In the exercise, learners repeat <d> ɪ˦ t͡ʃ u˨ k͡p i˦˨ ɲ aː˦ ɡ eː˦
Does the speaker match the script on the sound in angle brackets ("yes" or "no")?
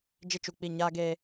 no